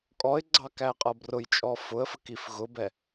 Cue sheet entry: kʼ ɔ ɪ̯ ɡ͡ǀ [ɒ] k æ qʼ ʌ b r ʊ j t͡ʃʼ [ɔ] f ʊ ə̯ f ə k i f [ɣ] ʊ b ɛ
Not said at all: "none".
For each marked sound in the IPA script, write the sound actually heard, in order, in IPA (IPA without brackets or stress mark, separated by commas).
ɑ, ɔ, ɣ